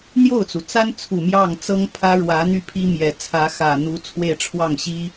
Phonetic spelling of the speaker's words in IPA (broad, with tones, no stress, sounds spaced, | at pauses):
n̪ j o˥˩ ʊ̯ t͡s u˩ t͡s a˥ n t͡sʰ u˨˩ m j ɑ˥˩ ŋ t͡s ɤ˥ ŋ pʰ ä˥ ɻ w ä˧˥ n̪ y˥˩ pʰ i˥ m j ɛ˨˩ t͡sʰ ä˧˥ x ä˨˩ n̪ u˧˥ t͡sʰ w e˥˧ ɪ̯ ʈ͡ʂʰ w ɑ˥˩ ŋ ɕ i˥